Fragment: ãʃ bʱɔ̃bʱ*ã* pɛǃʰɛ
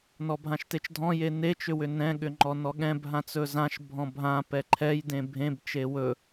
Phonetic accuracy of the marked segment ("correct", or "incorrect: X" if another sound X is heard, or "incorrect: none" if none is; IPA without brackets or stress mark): correct